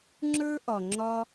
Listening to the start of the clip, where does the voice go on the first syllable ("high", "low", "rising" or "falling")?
high